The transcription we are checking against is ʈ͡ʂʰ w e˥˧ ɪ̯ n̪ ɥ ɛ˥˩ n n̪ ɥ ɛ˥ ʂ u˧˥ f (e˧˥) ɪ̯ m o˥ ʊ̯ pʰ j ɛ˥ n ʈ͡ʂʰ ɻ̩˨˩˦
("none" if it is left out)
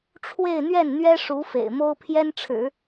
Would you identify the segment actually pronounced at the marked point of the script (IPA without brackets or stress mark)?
ḛ˨˩